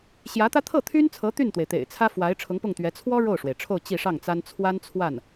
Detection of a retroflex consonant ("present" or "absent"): present